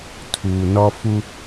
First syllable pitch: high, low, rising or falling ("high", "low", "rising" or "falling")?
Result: low